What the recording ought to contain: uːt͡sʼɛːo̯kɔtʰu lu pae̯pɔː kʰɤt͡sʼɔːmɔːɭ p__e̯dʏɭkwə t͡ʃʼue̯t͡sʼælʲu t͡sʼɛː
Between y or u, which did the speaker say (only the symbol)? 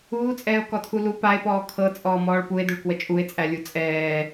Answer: u